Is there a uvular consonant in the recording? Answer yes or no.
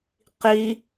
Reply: yes